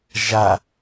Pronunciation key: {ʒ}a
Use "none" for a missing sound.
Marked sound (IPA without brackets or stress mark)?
ʒ